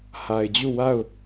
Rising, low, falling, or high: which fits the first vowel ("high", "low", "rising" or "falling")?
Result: low